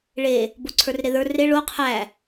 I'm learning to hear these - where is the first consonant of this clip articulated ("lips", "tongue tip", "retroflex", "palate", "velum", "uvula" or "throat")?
retroflex